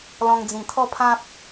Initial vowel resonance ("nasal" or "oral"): nasal